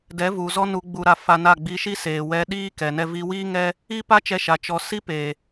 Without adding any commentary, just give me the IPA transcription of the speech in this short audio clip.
d ɛ˨˦ v u˨ z ɔ˦ n u˧ ɡ͡b u˧ ɾ a˧ f a˧ n a˦˨ ɡ͡b i˧ ʃ i˦ s eː˨ w ɛ˧ ɗ iː˦ k ɛ˨ n ɛ˧ v i˦ w iː˦ ŋ ɛ˦ | i˦ p a˦ t͡ʃ ɛ˧ ʃ a˨ t͡ʃ ɔ˨ s i˦ p eː˨

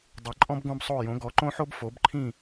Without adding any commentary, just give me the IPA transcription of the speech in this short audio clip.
dˤ ɯ˩˥ ǃʼ ɔ̃˥ b ɡ õ˥ b sˤ o˥˩ j õ˩˥ ɡ ɔ˩˥ ǃ õ˥ ħ o˥ b f o˩˥ b ǃʰ ĩ˥˩

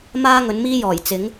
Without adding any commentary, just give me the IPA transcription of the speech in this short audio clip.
m aː˥ ŋ ɵ˨˧ n m iː˥ j ɔː˨˩ j t͡s ɪ˨˥ ŋ

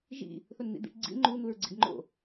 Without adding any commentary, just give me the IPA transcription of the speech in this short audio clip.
ʒ ḭ | θ o n n̪ ḭ d̪ ḭ ʈ ɡ͡ǀ ḭ ŋ͡ǃ u n̪ u ɹ ɡ͡ǀ ḭ ɡ ŋ͡ǃ o̰

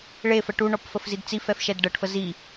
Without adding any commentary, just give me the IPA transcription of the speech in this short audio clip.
ɭ e f ə ʈ u ɳ ɔ p f ə f z i d t͡s i f ɛ f ʃ ɛ d ɖ ɤ ʈ f ə z i

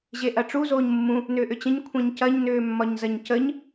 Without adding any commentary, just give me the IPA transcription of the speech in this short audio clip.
ʑ e ʔ ɐ ʈ͡ʂ u z oː ɲ mː ũ | n ʏː ʔ ʏ t͡ɕ ə̃ ɲ kʷʰ ẽ ɲ c ɐ ɲ n ʏː mː ɒ ɲ z ɐ ɲ c ə ɲ

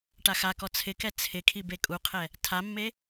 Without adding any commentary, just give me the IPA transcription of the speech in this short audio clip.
ʈ a x a k ɔ t͡sʰ ɪ k ɛ t͡sʰ ɪ kʰ i b e kʼ u qʰ ɛ | tʰ a mː e

